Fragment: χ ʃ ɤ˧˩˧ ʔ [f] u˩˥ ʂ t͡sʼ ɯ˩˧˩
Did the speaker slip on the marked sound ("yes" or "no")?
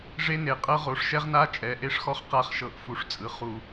no